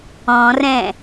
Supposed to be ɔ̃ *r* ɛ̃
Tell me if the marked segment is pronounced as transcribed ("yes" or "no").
yes